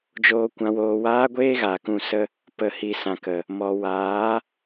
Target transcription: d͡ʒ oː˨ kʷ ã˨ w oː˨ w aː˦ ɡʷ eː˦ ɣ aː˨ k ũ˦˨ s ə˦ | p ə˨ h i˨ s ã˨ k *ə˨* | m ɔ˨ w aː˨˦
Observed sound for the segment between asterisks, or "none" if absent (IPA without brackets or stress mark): ə˨